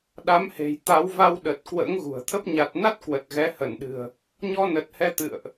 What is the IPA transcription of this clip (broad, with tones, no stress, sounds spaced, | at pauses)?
ɗ a˨˦ m h e̤˨˩ j t̪ a˨˦ w v a˧ w ɗ ə˨˩ t̚ k w ə̰ː˧˥ ŋ ɣ ṳ˨˩ ə̯ t̪ʰ ə˦˥ p̚ ɲ a˨˩ t̚ n a˦˥ t̚ k w ə˨˩ t̚ ɣ ɛ˨˦ h ə˧˩ n ɗ ɨ̤˨˩ ə̯ | ɲ ɔ˧ n ə˨˩ t̚ h ɛ˧ t̪ ɨ̰˧˨ ə̯ ʔ